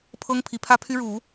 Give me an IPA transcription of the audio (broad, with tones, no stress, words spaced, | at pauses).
pʰɤ˥ŋ pʰi˧˥pʰä˥pʰy˥ ɻu˨˩˦